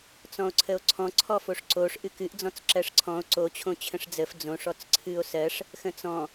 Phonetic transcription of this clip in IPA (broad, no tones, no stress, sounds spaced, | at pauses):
t͡s ɔ̃ o̯ ǀʰ ə o̯ ǀʰ ɔ̃ ǀʰ ɔ f o ʂ ǀ o ʂ ʔ ɨ k ɨ ʔ d͡z ɔ̃ t͡s ǁ ɜ ʂ ǀʰ ɔ̃ o̯ ǀ o t͡ɕʰ õ t͡ɕʰ ə̃ ʂ d͡z ə f d͡z õ ʂ ɔ t͡s ǀʰ ɨ o̯ s ɜ ʂ | x ə̃ t͡s ɔ̃